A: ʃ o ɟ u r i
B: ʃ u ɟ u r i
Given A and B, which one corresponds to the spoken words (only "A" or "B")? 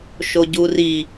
A